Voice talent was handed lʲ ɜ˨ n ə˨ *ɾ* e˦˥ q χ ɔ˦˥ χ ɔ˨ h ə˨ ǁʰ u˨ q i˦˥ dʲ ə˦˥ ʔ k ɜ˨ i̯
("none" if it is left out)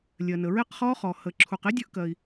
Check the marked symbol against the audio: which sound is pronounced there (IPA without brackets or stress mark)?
ɹ